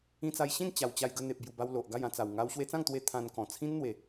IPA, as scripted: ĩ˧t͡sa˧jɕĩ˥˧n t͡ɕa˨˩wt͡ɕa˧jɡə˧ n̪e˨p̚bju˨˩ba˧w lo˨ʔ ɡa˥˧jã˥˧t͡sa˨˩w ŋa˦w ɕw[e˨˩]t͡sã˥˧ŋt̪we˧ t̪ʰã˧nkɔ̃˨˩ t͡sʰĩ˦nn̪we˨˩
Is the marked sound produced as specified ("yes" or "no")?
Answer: no